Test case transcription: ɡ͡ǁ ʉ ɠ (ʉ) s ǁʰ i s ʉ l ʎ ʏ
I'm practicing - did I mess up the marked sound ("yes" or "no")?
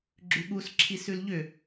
yes